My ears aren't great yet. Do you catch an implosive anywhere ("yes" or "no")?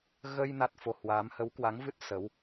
no